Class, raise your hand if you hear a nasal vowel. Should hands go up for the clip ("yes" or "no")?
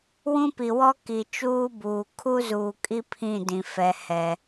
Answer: yes